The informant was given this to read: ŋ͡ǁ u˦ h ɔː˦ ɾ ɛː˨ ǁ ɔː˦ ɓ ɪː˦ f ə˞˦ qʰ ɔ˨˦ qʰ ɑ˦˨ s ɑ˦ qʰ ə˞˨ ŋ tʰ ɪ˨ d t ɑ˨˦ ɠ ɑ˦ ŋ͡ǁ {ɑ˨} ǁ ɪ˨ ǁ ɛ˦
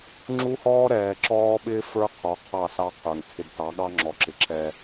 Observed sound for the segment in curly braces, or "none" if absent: ɔ˨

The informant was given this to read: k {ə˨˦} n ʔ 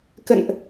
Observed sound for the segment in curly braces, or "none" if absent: ə̰˧˨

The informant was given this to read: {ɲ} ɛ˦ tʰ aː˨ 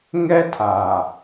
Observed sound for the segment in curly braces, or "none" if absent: ŋ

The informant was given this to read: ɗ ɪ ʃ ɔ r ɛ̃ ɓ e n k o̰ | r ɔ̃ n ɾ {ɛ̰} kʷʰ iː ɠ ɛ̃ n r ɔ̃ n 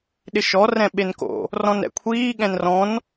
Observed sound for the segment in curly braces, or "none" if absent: ɛ̰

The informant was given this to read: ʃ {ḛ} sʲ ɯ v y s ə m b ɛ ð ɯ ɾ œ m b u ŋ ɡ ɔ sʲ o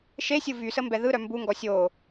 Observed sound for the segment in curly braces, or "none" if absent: e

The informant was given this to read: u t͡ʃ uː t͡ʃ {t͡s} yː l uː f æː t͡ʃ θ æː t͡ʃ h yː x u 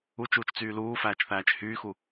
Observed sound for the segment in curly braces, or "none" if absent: t͡s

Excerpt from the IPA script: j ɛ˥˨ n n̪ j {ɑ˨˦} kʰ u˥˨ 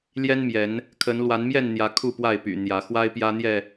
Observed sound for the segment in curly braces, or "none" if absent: ä˨˦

